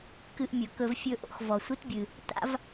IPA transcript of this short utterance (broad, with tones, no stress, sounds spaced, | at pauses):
k ɨ˧ ʔ mʲ ɵ˩ k ɵ˧ v fʲ ɵ˧ ʔ o̰˥ x v ɔ˩ sʷ ɨ˥ t bʲ ɨ˩ | t a̰˥ v